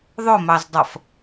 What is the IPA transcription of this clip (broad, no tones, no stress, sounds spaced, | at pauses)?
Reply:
ðˤ ʊ m ɑ z dˤ ʌ f